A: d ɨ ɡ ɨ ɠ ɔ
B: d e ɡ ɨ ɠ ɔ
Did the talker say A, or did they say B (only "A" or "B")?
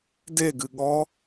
B